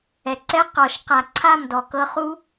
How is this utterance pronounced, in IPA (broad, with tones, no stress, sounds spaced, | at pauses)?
ɛ˩ ǀ ɛ˦˥ q ɔ˨˩˦ ʃ q a˨˩˦ ǀʰ a˥˨ m d ɔ˩ k ɤ˦˥ χ u˦˥